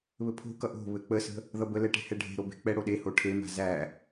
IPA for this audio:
β ɘ pʰ o̤ k ʌ ʔ o̤ β ɘ k͡p ə s ə̤ | ð ʌ b ə l ɛ ʈ e̤ h ɛ ɖʱ e̤ ɾ o b e̤ k͡p ɛ ɽ o ɗ e h o ʈʰ e m a̤ z æ

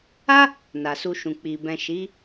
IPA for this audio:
a˦ | n a˨ s u˧ ʃ ũ˨ k͡p i˨ b ɛ̃˨ ʃ i˨˦

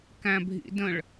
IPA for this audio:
k æ̃ bʱ ḭ d ə̃ ɭ

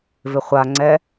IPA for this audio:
v ɪ χʷ a ŋ͡ǀ ɛ

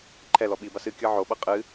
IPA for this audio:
ǃʰ ɛ l ɔ ɓ i b a s ɨ kʲ ɤ ʕ o ɓ ɤ qʼ ɨ

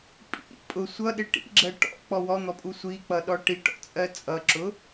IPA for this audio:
pʼ ḭ pʼ ʊ sʷ ʌ ɗ ɪ ʈ ḭ ɡ͡ǁ ɜ ʈ ɔ̰ k͡p ɔ w ɔ n̪ ɔ pʼ u sʷ i k͡p ʌ ɗ ɔ ʈ i ʈ ɔ̰ t͡sʼ ɜ t͡sʼ ʌ ǁ ʊ

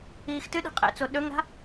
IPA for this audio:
iː x t ɨ ɗ i̤ qʼ ḛ t͡s o ɗ ɵ ŋ ɾ a̤

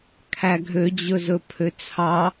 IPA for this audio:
kʰ æ ɡʱ ø d͡ʑ ɵ z ɵ pʰ ø t͡sʰ ɑ

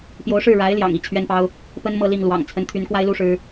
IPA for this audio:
p j o˧˥ ʊ̯ ʂ ɻ̩˥˩ ɻ a˧˥ ɪ̯ l j ɑ̰˨˩ ŋ i˧˥ t͡ɕʰ ɥ ɛ˥ n p ɑ˥ ʊ̯ | p ə˥ n m ɤ˥˧ l i˥˩ ŋ l w ɑ̰˨˩ ŋ t͡sʰ ə˧˥ n t̪ʰ y˧˥ n k w a˥ ɪ̯ l u˥ ʂ ɻ̩˥

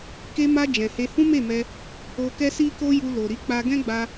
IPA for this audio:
k e˧ m a˧ d͡ʒ ɛ̃˨ h e˧ h ũ˦ m e˦˨ m ɛ˧ | o˧ k ɛ˦ s i˦ k o˦ j u˧ l o˨ ɾ i˨˦ k͡p a˧ ɡ ɛ̃˦ ɡ͡b a˧

